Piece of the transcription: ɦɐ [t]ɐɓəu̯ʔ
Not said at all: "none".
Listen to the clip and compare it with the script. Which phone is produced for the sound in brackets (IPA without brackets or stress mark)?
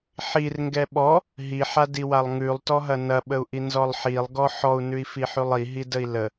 n